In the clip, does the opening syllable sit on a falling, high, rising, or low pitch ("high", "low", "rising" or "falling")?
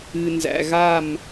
low